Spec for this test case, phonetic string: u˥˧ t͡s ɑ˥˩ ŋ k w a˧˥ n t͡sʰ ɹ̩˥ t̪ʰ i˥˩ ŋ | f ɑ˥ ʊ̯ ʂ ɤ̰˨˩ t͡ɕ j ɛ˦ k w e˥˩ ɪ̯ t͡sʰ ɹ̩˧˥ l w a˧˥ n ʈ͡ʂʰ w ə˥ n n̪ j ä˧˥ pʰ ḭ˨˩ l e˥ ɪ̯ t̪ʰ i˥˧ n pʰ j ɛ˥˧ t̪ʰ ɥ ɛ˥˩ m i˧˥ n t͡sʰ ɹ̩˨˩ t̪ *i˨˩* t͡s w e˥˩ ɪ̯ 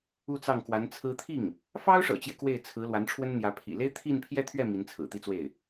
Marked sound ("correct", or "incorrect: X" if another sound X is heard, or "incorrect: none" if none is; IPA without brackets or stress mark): incorrect: i˥